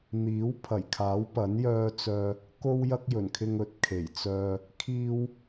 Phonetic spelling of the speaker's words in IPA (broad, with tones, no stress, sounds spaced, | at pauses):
n̪ iː˨˥ w pʰ ɐ˨˩ j kʰ aː˨˥ w p ɐ˨˥ n j œː˧ t͡s œː˧ | k o˧ w j ɐ˧ k̚ j ɵ˨˩ n kʰ ɪ˧ ŋ ɵ˨˥ t̚ kʰ e˨˩ j t͡s œː˧ | kʰ iː˧ w